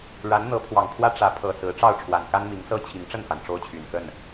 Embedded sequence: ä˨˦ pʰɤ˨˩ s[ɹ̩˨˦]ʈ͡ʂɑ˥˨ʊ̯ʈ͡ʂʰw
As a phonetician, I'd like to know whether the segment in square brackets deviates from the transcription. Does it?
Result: no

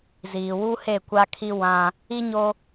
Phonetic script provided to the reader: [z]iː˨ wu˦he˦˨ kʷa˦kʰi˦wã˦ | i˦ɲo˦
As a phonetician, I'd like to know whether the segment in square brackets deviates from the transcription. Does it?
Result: no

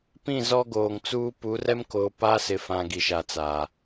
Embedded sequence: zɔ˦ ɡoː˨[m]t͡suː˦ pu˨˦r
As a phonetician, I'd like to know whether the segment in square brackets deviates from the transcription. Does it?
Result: yes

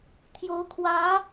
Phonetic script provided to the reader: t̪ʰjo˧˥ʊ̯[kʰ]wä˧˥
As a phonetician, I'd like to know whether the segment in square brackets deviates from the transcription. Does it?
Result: no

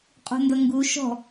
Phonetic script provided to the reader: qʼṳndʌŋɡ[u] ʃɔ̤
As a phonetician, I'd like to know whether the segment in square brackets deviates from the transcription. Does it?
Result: no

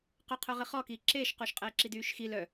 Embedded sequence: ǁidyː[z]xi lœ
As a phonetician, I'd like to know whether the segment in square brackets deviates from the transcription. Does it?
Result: yes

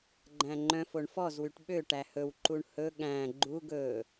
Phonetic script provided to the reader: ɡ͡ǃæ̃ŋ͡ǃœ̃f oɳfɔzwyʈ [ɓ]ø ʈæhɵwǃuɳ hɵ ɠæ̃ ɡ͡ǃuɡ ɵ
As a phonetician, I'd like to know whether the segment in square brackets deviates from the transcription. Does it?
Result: no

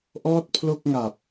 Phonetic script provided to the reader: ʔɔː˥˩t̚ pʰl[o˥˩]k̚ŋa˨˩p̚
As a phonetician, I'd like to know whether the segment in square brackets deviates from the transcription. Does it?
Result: no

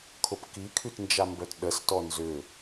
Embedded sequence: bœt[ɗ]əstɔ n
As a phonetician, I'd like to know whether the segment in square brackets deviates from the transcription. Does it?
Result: no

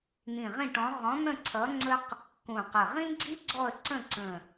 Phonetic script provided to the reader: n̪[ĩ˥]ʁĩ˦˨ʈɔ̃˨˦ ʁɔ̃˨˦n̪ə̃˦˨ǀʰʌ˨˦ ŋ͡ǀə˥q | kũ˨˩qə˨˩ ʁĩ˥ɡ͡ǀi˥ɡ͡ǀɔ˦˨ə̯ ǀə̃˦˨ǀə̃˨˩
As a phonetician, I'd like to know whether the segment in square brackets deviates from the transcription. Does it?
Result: yes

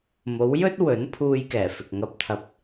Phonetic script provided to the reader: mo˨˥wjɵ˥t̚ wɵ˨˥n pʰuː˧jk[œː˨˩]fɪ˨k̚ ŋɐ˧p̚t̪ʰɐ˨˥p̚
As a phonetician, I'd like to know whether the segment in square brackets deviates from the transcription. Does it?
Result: yes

